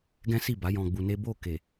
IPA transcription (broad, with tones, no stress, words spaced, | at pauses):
ɡɛ̃˦si˦˨ba˨˦ jɔ̃˧ɡ͡bu˧ne˦ bo˦˨ke˨